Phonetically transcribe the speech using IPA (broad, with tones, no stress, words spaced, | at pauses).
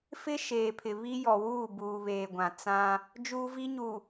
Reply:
fɪ˦ ʃeː˨pʰɪ˨ βi˦jɔ˨wuː˦˨ buː˨βeː˨ɡʷã˨ t͡sã˦ | d͡ʒuː˦vi˦ɲu˨